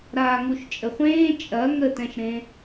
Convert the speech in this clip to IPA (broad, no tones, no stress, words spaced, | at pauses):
ɾaːŋuʃt͡ʃʼəχʷẽː t͡ʃʼɐ ŋətɛ̃ʃɾẽ